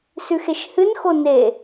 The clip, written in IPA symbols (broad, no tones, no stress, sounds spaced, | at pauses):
s ʉ x e ʃ h ɨ n x o n e